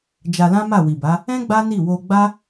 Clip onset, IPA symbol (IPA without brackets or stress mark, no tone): d͡ʒ